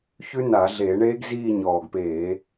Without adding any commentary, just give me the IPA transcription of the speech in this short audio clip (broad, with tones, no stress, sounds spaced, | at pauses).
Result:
ç ʉ˦˥ n a˧˩˧ ɮ eː˧˩˧ ɳ eː˦˥ ɡ z iː˦˨ ɲ ɔː˨˩ ɡ p eː˧˩˧